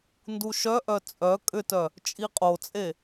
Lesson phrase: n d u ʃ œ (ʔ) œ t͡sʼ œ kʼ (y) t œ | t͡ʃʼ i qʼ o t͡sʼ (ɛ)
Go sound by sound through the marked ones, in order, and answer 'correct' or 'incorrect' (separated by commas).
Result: correct, incorrect, incorrect